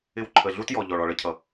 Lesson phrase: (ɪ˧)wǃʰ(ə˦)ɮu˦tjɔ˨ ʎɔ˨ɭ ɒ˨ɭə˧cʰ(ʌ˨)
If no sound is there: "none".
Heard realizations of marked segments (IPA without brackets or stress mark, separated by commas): ɪ˧, ə˨, ʌ˨